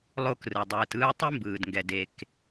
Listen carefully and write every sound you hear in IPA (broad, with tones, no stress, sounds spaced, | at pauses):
lˠ o˦ k r ɯ˩ dˤ ɯː˨ t ɯː˦ tˤ i˥ m b ɯː˩ d ŋ ɡ ɛ˨ d e˨ k